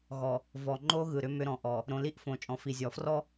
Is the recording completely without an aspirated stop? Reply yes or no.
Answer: yes